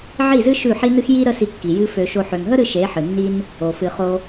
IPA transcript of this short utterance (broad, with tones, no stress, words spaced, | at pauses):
ʕi˦˨zɨ˦ ʃʉ˦˨ħi˦nɨ˦x ji˦ ɾə˦si˧kːi˨ jɨ˧fø˨ʃo˧ ħø˨ŋɦə˦ɾɨ˧ ʃe˨˦ħɨ˨nːi˦n | o˨fɨ˧χo˦